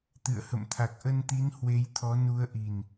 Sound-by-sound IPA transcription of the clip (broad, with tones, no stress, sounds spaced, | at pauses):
t̪ ɨ̰˧˨ ə̯ h ə̰˧˨ m t̪ʰ a˨˩ k̚ ʔ ə˧ n t̪ i˨˦ n h w e˨˦ j t̪ʰ ɔ˨˦ n u˨˦ ə̯ ʔ i˨˩ n